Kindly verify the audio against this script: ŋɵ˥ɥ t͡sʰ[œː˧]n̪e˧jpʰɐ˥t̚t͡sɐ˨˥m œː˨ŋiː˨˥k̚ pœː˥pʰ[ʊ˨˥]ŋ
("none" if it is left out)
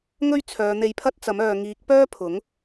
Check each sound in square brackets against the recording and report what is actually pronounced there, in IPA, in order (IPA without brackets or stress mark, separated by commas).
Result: œː˨˧, ʊ˨˥